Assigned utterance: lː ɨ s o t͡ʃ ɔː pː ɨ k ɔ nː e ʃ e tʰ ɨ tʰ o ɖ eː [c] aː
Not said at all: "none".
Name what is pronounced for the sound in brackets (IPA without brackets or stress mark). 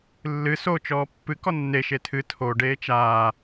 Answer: t͡ʃ